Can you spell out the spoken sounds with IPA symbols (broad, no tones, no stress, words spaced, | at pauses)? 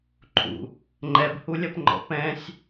ǃʰṵ | ŋ͡ǃɛbhulʲɐpŋ͡ǃɔ̰ pɛ̃sʲ